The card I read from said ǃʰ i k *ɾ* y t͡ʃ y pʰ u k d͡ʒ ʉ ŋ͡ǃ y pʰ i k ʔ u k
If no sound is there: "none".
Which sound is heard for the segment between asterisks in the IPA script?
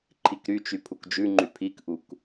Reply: ɾ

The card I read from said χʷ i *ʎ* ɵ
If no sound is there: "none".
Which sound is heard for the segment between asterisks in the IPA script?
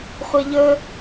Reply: ʎ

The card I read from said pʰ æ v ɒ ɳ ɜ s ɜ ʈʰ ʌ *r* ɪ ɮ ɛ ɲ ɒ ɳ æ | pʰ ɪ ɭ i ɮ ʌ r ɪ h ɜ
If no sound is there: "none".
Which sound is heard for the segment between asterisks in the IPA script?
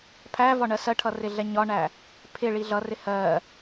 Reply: r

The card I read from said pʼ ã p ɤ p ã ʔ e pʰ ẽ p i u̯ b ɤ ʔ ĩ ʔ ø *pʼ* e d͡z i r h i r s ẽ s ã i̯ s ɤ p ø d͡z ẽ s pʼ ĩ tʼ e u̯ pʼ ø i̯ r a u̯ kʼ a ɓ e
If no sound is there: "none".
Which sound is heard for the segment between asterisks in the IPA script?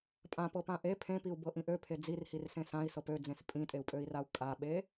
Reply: pʰ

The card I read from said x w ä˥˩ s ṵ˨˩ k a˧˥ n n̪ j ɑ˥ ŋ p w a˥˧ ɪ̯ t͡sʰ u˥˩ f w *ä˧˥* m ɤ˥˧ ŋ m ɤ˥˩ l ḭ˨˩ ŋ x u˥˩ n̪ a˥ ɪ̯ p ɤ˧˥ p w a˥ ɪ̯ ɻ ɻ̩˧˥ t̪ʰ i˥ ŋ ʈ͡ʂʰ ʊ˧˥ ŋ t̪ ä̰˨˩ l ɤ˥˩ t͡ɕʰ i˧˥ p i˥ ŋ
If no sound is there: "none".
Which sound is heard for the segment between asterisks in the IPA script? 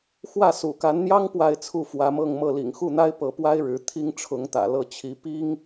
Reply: ä˧˥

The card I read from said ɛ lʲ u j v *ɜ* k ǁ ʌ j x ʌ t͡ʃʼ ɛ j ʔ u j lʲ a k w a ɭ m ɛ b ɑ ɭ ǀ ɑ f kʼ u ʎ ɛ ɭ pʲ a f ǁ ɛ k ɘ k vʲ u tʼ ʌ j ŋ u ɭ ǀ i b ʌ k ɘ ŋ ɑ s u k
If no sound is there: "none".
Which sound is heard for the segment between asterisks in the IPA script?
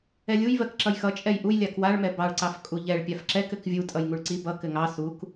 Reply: ɜ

